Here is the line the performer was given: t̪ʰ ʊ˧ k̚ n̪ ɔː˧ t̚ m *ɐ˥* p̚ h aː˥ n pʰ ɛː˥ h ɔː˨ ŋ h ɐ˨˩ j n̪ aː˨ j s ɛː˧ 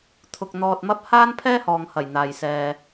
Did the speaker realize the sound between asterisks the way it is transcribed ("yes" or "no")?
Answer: yes